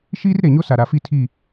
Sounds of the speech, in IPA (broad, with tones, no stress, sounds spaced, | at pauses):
ʃ iː˦ r ɾ e˨ ɲ o˦ s a˨ ɾ a˨ f i˦ tʰ i˦˨